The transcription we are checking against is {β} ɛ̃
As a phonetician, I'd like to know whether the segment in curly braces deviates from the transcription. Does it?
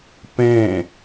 yes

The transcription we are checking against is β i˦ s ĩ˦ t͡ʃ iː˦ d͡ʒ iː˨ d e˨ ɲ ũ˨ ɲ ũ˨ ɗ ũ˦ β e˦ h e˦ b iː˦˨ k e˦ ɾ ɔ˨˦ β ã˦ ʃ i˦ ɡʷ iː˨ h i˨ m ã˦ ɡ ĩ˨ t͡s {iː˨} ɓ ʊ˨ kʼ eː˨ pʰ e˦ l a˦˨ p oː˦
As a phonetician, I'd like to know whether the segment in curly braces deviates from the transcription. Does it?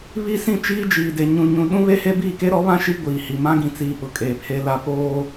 yes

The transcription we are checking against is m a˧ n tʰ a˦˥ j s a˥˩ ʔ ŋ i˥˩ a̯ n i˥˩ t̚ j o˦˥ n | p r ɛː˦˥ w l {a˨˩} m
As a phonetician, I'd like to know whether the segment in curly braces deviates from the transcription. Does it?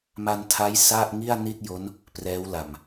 no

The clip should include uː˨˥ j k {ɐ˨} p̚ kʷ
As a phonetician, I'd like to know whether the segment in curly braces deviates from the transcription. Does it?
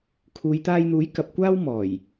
no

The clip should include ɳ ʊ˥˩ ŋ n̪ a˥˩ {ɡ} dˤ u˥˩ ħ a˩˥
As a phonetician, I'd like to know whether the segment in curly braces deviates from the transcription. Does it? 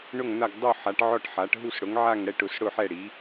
no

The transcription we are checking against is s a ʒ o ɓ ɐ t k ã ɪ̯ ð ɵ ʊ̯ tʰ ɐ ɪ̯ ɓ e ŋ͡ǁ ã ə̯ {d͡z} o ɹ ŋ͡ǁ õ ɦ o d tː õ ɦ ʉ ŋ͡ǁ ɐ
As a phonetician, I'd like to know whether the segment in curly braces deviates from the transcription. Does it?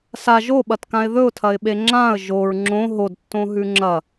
yes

